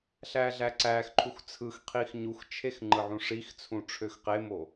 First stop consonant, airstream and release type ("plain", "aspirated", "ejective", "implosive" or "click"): click